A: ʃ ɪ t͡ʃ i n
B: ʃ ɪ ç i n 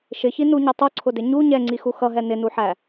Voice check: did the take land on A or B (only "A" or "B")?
B